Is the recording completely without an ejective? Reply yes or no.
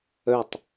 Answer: yes